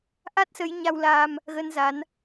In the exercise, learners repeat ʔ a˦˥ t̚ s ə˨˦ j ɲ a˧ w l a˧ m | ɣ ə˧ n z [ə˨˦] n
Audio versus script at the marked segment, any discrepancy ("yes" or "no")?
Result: yes